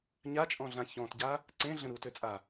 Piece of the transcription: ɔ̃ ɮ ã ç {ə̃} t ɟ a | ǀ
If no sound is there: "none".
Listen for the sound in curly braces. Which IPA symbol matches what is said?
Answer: ɔ̃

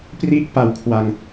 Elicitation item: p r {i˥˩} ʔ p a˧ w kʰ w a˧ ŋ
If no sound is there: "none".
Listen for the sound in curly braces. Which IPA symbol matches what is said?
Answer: i˥˩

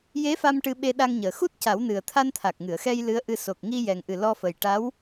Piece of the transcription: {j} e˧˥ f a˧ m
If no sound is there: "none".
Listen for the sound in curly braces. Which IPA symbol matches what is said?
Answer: j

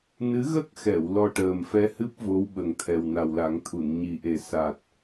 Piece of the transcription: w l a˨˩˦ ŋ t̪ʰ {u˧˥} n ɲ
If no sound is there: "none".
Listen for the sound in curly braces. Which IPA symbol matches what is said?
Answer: u˨˩˨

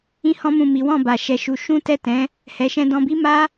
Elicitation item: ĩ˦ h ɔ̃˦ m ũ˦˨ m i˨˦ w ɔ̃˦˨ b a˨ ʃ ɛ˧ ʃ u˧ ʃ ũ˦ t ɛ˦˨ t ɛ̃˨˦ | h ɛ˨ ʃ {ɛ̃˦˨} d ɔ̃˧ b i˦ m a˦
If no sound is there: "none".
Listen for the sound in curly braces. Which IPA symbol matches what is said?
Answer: ɛ̃˧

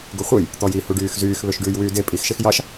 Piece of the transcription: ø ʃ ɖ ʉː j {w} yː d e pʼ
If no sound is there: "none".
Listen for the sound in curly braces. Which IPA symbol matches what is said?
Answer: w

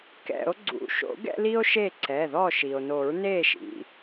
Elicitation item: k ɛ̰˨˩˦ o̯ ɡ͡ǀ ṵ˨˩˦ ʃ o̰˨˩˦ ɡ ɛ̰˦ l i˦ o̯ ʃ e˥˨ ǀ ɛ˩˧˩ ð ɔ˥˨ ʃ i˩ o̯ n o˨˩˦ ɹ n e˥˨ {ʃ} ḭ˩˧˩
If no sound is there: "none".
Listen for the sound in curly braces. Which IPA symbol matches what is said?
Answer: ʃ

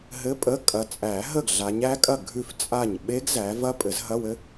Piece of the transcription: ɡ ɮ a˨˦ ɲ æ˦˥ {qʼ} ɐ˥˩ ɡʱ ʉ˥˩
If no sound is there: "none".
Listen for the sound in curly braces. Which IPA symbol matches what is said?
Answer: kʼ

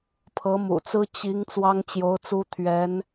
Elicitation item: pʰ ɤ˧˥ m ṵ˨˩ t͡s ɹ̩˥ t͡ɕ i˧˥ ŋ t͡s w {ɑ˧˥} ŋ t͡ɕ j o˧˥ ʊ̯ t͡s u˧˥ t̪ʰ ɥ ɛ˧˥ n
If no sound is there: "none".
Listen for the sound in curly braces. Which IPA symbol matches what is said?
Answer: ɑ˥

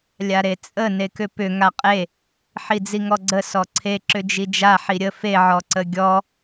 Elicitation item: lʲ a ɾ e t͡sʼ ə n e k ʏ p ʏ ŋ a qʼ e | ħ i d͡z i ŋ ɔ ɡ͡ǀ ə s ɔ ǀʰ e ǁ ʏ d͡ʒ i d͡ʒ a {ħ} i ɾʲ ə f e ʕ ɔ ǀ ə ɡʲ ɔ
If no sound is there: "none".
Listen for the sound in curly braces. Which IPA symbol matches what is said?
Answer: ħ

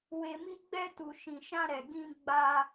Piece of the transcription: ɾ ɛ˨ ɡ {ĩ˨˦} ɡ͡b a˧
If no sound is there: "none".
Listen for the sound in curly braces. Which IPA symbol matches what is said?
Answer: ĩ˧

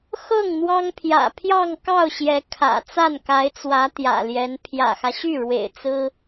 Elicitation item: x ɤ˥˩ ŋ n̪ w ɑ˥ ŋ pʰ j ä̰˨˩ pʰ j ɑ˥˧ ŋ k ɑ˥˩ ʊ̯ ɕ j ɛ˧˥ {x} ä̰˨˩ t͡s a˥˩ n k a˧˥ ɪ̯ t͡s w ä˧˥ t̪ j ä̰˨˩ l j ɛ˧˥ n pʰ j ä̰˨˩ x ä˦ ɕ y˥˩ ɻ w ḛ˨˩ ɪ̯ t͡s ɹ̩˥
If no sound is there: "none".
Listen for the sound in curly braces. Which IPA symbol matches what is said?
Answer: kʰ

